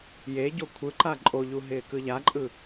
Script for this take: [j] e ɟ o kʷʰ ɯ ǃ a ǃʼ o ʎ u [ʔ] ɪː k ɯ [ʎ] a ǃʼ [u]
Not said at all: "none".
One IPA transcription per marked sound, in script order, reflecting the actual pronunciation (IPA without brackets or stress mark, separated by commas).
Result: j, ɦ, ʎ, ɯ